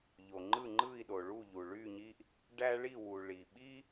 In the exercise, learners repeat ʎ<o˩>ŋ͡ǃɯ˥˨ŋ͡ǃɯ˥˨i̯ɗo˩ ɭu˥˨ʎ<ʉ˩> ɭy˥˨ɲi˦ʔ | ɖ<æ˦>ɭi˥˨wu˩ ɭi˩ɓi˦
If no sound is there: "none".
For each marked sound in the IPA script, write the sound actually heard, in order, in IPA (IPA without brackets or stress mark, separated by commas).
o˩, u˩, æ˦